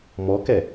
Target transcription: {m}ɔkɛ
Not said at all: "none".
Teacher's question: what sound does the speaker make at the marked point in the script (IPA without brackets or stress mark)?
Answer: m